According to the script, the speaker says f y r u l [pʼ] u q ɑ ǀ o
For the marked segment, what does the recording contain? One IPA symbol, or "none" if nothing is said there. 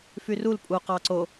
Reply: pʼ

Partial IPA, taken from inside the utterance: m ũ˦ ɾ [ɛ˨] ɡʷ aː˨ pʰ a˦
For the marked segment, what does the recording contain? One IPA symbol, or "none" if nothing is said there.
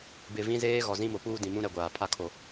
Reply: ɛ˨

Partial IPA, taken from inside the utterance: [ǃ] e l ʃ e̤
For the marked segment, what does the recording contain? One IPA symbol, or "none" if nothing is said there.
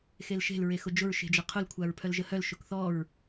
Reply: x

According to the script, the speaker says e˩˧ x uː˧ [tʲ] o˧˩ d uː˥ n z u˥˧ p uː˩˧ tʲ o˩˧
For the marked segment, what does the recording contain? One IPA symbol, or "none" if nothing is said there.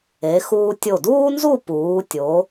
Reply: tʲ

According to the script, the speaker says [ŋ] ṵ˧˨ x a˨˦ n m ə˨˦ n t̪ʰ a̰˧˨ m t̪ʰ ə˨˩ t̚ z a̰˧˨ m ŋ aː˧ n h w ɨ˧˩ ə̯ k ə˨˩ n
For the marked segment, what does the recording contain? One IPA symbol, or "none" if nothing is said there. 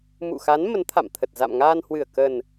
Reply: m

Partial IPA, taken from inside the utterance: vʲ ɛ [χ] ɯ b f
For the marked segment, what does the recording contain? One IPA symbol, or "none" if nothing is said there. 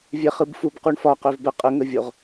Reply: χ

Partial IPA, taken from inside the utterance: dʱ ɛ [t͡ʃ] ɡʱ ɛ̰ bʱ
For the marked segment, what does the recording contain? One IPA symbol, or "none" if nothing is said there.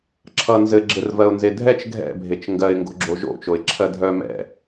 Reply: t͡ʃ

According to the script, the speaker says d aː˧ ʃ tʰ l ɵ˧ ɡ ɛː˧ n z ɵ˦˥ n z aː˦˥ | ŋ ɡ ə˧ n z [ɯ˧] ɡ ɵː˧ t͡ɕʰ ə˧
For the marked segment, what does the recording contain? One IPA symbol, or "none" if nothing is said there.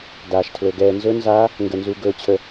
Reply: u˧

